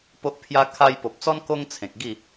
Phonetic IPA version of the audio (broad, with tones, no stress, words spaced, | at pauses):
po˦ʔ pʰja˦ kʰa˧jpo˨p̚t͡sɔ˦n ko˦ŋt͡sʰẽ˨k̚ ɡi˥˧